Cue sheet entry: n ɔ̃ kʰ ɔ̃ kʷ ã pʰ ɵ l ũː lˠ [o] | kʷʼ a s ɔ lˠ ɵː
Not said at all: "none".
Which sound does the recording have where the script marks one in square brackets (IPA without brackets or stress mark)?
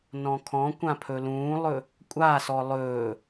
ɵ